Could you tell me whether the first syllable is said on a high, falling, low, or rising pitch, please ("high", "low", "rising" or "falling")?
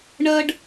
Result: high